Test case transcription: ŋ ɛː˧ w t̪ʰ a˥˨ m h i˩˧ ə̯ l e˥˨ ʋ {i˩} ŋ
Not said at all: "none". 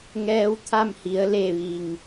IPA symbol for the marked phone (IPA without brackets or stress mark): i˩